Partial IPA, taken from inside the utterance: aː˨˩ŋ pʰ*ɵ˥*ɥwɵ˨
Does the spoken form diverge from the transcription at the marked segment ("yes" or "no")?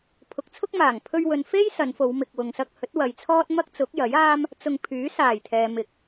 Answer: yes